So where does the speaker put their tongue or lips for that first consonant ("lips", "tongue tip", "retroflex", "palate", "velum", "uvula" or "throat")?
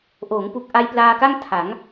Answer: throat